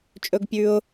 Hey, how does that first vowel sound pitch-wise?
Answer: high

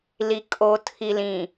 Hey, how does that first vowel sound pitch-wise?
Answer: low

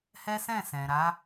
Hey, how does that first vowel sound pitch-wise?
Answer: high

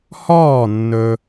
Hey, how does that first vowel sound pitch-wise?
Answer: falling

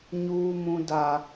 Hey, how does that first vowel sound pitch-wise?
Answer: high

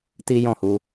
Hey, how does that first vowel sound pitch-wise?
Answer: high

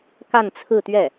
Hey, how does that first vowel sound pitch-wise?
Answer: falling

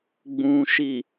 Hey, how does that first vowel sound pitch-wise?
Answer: low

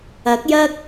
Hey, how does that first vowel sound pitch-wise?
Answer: rising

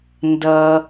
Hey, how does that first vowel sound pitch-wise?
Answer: high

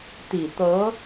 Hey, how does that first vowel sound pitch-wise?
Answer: low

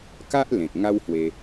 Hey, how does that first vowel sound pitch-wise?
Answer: high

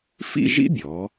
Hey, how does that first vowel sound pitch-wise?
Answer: falling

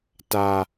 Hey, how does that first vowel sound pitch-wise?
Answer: low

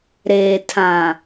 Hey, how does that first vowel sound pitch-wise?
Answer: low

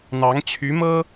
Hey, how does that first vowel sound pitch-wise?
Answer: rising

